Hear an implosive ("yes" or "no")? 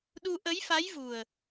yes